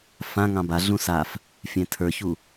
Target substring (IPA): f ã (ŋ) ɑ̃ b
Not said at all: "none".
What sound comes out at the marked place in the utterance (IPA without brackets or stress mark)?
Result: ŋ